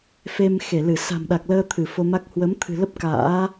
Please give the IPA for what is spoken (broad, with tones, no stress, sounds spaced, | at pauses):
f e˧ m x e˧˩ l ɨ˧˩ s a̤˨˩ m ɗ a˨˩ k̚ l əː˧ t̪ʰ ɨ˧˩ f o˧ m a˦˥ k̚ h w ə˨˦ m t̪ʰ ɨ̤˨˩ l ə˦˥ p̚ k a̰ː˧˥